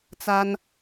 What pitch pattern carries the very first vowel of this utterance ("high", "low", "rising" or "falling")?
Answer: high